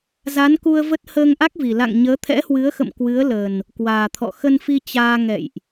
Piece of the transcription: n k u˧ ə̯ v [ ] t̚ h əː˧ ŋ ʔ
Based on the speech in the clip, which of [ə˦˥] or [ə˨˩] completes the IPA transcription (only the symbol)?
ə˦˥